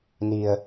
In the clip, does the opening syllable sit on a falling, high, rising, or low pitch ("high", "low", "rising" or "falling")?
low